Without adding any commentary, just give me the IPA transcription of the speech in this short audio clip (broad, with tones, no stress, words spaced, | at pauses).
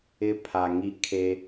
ɪ˦pʰa˨ ŋi˦kʰe˦